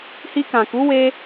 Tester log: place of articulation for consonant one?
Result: glottal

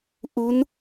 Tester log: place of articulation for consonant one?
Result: glottal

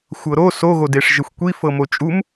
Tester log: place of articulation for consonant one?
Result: velar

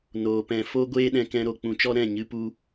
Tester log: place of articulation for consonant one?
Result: alveolar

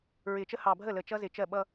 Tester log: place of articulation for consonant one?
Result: alveolar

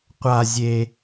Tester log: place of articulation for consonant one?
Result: uvular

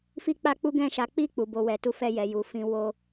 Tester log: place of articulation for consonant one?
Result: labial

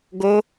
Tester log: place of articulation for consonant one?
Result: velar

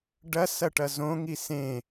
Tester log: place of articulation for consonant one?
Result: retroflex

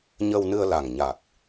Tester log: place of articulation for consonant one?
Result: palatal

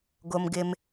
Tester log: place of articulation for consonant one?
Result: velar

